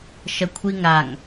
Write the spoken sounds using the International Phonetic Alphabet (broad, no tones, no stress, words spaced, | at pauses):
ʃɐkʷʰiŋaŋ